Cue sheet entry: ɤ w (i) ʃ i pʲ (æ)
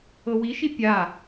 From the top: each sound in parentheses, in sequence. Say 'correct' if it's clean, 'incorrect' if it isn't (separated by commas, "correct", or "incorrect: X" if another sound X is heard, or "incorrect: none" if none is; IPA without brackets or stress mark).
correct, incorrect: a